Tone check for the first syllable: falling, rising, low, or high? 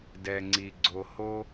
low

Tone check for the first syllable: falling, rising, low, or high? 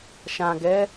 low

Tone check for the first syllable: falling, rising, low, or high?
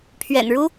low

